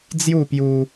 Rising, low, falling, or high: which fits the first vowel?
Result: falling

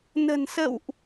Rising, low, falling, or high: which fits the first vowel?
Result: low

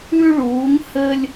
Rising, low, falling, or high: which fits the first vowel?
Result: high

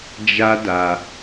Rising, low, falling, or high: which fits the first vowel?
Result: high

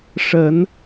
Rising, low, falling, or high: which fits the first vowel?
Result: low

